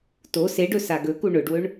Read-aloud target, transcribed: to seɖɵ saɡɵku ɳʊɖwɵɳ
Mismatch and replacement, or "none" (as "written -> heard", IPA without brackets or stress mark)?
none